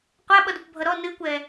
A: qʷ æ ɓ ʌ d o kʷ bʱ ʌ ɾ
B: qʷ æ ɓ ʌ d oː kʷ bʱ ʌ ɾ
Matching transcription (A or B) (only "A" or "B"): A